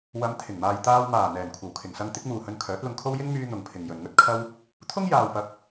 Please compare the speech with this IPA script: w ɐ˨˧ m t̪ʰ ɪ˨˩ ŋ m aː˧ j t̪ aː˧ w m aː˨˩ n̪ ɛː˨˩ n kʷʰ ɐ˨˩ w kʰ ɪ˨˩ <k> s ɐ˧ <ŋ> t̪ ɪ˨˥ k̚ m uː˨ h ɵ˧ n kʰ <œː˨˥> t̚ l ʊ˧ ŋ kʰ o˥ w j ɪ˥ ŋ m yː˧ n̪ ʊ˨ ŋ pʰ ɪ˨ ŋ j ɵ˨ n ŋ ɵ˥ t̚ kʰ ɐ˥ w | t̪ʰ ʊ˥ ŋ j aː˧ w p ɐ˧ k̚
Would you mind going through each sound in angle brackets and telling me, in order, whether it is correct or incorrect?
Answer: incorrect: ŋ, correct, correct

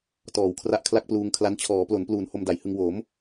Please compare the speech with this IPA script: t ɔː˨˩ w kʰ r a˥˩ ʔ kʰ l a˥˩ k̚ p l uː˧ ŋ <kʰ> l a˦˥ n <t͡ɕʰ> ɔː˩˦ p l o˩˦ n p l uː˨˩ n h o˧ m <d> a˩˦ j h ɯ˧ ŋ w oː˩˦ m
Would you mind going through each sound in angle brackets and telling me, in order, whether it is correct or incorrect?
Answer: correct, correct, correct

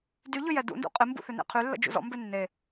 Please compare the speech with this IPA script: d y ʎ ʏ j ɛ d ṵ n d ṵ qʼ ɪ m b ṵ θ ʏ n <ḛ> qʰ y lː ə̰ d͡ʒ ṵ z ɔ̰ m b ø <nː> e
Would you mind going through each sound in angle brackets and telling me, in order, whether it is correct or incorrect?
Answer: correct, correct

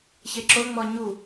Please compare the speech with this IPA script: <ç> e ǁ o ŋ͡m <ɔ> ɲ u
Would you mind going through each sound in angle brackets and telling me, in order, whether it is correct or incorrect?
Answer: correct, correct

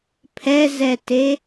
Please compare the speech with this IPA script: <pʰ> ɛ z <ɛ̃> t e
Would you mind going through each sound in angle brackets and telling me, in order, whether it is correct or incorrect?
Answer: correct, incorrect: ɛ

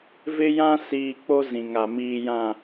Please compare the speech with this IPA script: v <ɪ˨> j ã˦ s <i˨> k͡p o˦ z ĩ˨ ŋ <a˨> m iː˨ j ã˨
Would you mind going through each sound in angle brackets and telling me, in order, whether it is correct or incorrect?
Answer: incorrect: ɪ˦, incorrect: iː˨, correct

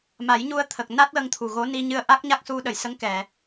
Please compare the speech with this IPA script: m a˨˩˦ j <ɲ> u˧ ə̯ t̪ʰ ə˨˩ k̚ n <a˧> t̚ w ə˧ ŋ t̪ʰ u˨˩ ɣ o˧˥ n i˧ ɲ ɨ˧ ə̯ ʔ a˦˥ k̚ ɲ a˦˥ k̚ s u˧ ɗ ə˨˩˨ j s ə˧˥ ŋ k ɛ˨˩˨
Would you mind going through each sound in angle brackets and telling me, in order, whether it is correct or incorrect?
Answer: correct, incorrect: a˦˥

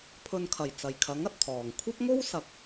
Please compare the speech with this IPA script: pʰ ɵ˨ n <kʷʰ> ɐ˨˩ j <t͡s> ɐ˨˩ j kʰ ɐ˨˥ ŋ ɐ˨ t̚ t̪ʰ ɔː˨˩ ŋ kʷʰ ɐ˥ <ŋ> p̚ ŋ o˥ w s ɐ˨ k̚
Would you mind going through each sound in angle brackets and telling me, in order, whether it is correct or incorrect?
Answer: incorrect: kʰ, correct, incorrect: none

